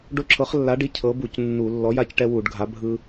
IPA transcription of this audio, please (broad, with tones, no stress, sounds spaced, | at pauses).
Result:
ɖ o˦ ǁʰ ɤ˨˥ χ lː a˨˥ ɖ i˨˥ cʰ ɤ˨˥ b u˧˩˧ c nː u˧˩˧ lː ɔ˨˥ j a˦ c ʈ ɛ˦ w u˧˩˧ ɖ ɡʱ a˨˥ bʱ ɯ˦